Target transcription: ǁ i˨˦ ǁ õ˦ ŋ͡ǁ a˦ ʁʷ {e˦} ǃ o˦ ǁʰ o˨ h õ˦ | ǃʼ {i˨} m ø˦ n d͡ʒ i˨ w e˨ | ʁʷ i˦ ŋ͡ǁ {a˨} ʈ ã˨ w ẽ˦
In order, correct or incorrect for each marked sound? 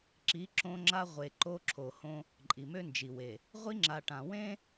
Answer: incorrect: e˨, correct, correct

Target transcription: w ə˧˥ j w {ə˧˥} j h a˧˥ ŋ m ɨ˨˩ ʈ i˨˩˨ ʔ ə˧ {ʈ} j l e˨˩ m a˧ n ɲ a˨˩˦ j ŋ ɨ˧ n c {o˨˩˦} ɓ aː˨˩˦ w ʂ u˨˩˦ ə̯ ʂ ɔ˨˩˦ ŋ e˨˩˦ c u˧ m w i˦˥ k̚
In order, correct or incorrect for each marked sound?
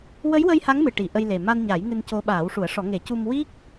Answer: incorrect: ə˧, incorrect: none, incorrect: o˧˥

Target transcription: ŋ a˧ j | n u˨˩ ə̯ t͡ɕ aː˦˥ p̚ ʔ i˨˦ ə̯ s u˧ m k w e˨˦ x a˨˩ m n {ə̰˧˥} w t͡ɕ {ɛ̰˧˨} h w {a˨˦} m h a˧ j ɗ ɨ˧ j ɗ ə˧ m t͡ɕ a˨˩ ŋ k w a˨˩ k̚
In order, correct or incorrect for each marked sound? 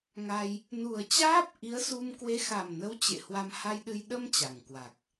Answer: incorrect: ə˨˦, incorrect: ḛ˧˨, incorrect: a˧

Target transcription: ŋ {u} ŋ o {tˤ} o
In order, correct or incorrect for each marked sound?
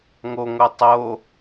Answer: incorrect: o, correct

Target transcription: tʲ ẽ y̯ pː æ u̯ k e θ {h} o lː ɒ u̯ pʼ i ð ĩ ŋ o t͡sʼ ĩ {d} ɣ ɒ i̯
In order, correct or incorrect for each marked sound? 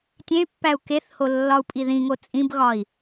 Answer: correct, incorrect: b

